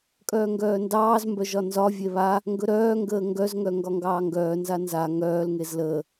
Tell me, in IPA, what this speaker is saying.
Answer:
kʼœːŋɡœːndɑːzmbœ ʒɒnzɒvʲe βa | ŋɡɵɾœːŋɡəː ŋɡœzŋœ ŋɡɒŋɡɑːŋɡœːnza nza ŋœːlŋez ləː

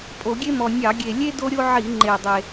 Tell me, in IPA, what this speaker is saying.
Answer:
pʼo˧˩˧ɡʲe˥mɔ˨˩ nʲɑ˧˩˧ɡʲe˨˩lʲe˥ do˥ɾʲo˥ ʕi˧˩˧ŋ͡ǃe˨˩dˤe˨˩

